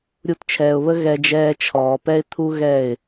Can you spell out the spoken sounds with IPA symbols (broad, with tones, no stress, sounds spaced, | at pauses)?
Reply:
ɾʲ u˧ t t͡ʃʰ ɛː˨ ʊ̯ β ə˦ ɣ ɛ˧ d͡ʒ ɛː˧ t͡ʃʰ ɔː˨ p ɛ˦ ɪ̯ t̪ʰ u˦ ɣ ɛ˦˨ ɪ̯